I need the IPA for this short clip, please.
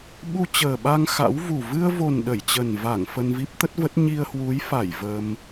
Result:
ɓu˧t͡ɕəː˨˩ɓa˧ŋ xa̰˧˥wvu˨˩ vɨ˧ə̯vo˨˩n ɗə˧˩jt͡ɕə˨˩nva˧˩ŋ fə˧nvi˦˥p̚t̪ə˦˥t̚və˦˥t̚ ɲi˧ə̯hwu˨˦jfa˧˩j və˧m

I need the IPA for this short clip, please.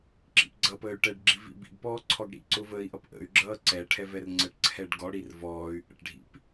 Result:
ǁḭpɡ͡ǀʌpəːy̯ ʈɛɖɡ͡ǁi vḭbḭɡpɔː ǀʰɔɡɽḭǀʊ vəːi̯ʔʌpʔə̰y̯ɡ͡ǁʌː ǀɛ ʈʰɛvɛrŋ͡ǀəʈǀʰɛɖ ɡɔɽir vɔːy̯ ʔə̰ʈɖʱḭp

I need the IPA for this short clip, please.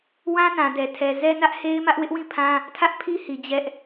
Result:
wã˦nã˨dɛ˨tʰɛ˨ zɛ˦nä˦ʔhe˦ɪ̯mä˦ʔ wɪ˦ʔwĩ˦˨pʰã˦ | tʰä˦ʔpʰi˦hi˨ d͡ʑɛ˦ʔ

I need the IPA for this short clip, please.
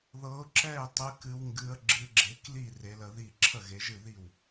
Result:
ðɤ˨˦ʊ̯ǁɛ˥˩ɪ̯ tˤɨ˨˦kɨ˨˦w ŋɡɨ˨˦ə̯ɡ͡ǁɨ˨˦ɡ͡ǁe˨˦kli˥˩ re˨˦lə˨˦ði˥˩ ǁʰə˥˩ɣe˨˦ʒɨ˥˩ði˥˩w

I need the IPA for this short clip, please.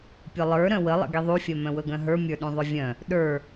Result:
pʲʊlˠə˞ ɾœ̃wəlˠə̰ ɡiðˤufʲœ mœ̃wɵɡœ̃ɦə˞ mʲə˞ɗũðˤʊvʲœ̃ | ɗə˞

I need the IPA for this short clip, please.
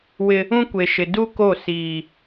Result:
wɪ˦ | ũ˦kʷe˨ʃɪ˨ du˦ ko˦˨ siː˨

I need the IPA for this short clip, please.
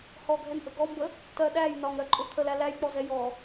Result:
hɔɡʱɛnʔə ɡɔmbə | tɜ ɗæj nɒŋɾɜǃʼʊ t̪ʰəlæ læjk͡pɔzɛ jɔ

